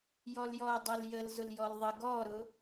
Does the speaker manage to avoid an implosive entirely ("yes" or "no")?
yes